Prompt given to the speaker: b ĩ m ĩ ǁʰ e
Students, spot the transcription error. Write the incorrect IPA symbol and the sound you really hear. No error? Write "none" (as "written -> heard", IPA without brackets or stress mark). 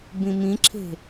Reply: e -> e̤